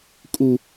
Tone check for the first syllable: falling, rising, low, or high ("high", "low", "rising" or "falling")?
high